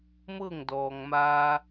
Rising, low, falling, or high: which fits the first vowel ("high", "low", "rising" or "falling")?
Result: falling